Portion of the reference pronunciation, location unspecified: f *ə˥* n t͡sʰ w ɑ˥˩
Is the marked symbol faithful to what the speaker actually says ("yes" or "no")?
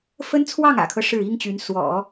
yes